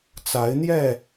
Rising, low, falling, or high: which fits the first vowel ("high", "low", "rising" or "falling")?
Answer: rising